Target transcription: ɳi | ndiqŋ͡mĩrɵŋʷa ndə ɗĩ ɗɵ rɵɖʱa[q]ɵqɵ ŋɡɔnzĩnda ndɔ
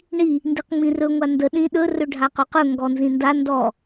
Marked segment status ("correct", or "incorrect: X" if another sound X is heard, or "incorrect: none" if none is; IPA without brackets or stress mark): correct